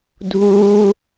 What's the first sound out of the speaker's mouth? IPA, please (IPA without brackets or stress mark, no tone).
dʱ